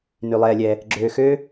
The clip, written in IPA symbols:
ny˧lˠɛː˧lʲɛː˧ | ɡ͡ǁøː˧xøː˥

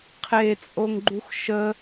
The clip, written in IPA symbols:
qʰet͡sʼoŋɡ͡ǃux ʃə

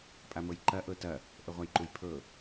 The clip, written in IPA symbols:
pʼamɤjǃɐ ʔɤtɐ | ʔəʁʷajǃujpʰɤ

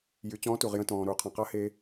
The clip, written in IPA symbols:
jy˩˧t͡ɕɔ̃ː˧˥tu˩ʁ jə̃˧tɔ̃ː˩ ɾuː˩˧qʰɔ̃˩qa˧˥ he˧

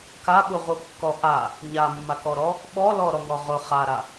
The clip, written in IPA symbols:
kaɓuʁukːɔ ʔa | ɲamːakɔɾɔ | ɓɔlɔɾɔŋɔ ʁʊ χaɾa

